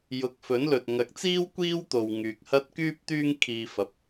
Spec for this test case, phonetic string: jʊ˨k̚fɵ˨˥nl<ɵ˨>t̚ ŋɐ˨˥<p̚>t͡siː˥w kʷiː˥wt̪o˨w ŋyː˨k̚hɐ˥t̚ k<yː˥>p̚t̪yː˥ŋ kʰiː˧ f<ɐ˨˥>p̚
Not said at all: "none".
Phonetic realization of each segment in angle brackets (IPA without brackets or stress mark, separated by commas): ɵ˨, k̚, yː˥, ɐ˨˥